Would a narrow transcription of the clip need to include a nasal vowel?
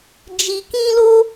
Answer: yes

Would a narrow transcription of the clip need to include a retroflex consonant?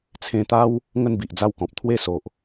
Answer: no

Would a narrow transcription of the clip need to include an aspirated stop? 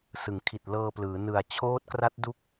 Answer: yes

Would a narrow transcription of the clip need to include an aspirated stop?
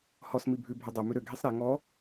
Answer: no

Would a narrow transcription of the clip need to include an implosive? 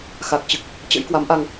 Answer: no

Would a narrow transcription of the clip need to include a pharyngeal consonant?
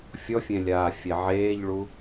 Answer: yes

